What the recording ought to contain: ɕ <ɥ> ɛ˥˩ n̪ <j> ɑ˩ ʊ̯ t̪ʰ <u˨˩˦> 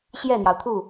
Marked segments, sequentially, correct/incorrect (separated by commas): incorrect, correct, incorrect